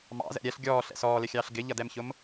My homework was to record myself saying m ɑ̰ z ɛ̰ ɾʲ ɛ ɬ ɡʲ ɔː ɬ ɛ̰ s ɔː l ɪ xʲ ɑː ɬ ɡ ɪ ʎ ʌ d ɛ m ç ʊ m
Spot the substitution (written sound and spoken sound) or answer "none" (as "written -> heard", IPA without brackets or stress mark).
none